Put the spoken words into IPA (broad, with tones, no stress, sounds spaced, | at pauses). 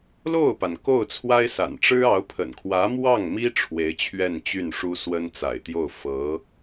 l o˥˩ ʊ̯ p a˩ n k o˥˩ ʊ̯ t͡sʰ w a˥ ɪ̯ s a̰˨˩ n ʈ͡ʂ ɻ̩˥ ɑ˧˥ ʊ̯ pʰ ə̰˨˩ n kʰ w ä˧˥ m w ɑ˥˩ ŋ m i˥ ʈ͡ʂʰ w e˧˥ ɪ̯ t͡ɕʰ ɥ ɛ˥˧ n t͡ɕ y˥˩ n ʂ u˥ s w ə˥ n t͡s a̰˨˩ ɪ̯ t̪ j o˥˩ ʊ̯ f ɤ˧˥